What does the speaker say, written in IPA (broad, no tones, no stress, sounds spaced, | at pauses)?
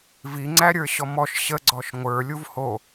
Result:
v i ŋ͡ǀ æ ɾʲ ə˞ ɕ ɔ m ɔ ʃ ɕ ə ɡ͡ǀ ɔ ʃ ŋʷ ə˞ lʲ u v h o